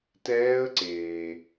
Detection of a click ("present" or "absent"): present